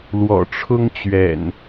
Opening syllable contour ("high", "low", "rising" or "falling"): low